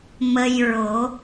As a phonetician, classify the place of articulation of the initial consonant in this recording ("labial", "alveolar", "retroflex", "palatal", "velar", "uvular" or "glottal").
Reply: labial